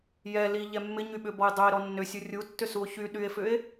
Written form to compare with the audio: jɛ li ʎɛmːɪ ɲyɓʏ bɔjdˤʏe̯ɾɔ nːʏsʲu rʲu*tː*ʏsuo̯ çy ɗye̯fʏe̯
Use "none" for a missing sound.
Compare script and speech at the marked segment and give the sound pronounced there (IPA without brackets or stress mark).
tː